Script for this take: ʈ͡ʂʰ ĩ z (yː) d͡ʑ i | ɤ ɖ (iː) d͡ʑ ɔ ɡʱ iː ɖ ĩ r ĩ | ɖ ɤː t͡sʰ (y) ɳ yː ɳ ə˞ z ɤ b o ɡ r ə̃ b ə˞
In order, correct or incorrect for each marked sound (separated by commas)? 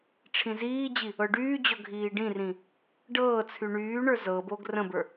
incorrect, incorrect, correct